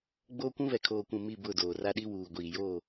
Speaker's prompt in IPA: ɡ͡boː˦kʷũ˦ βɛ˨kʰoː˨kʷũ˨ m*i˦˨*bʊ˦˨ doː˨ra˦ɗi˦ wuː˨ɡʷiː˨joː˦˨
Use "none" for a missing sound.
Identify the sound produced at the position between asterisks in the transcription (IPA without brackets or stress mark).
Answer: i˦˨